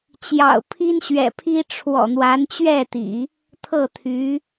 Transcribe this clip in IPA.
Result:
t͡ɕ j ɑ̰˨˩ ʊ̯ pʰ i˥ n ɕ ɥ ɛ̰˨˩ pʰ i˥ ʈ͡ʂʰ w ɔ̰˨˩ n̪ w a˧˥ n t͡ɕ ɥ ɛ˥˩ t̪ ḭ˨˩˦ | t̪ʰ ɤ˥˩ t̪ʰ y˧˥

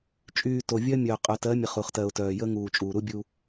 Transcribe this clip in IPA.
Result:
t͡ʃʼ yː˨ t o˨ vʲ ɜ˦ mʲ œː˨ qʼ œ˨ t ɜ˨˦ mʲ ə˨ χ u˨ χ t ɜ˨ ʊ̯ t œː˨ j ə˦ ŋ uː˨ t͡ʃʼ uː˨ ɾ u˦ bʲ u˦

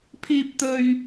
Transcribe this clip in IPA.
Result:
pʰ iː˥ p̚ t̪ ɵ˥ ɥ

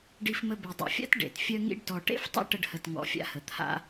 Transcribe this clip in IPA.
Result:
ɖ i˧ f m ə˧ b e˨ dˤ ḛ˨ fʲ a̰˦ t ɖ ḛ˨ t fʲ œ˦ ŋ ḭ˦ ɖ t ɔ˧ ʈ ḛ˦ f tˤ ə̰˦ ʈ ə˧ ɖ h ə˨ t ŋ ɔ̰˨ fʲ a̰˧ h ə˨ t̪ʰ a̰˧

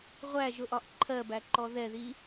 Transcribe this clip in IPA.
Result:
ʁʷ æ ʒ ʊ ʔ ɒ ʔ ǃʰ ɜ b æ ǃ ɔ ð ɛ ð i

